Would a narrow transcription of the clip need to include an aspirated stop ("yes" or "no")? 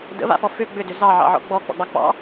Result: no